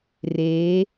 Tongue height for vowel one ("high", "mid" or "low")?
mid